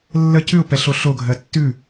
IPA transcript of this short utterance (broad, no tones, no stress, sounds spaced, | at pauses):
lː ə c ʉ ʊ̯ p ɛ ɬ o ɬ o ɡʱ ɜ tː ʉ